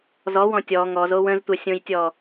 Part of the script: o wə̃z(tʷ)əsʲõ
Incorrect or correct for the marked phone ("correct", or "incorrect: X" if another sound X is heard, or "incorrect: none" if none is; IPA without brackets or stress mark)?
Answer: correct